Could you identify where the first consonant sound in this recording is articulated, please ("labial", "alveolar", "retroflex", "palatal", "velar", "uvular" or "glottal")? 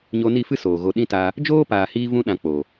palatal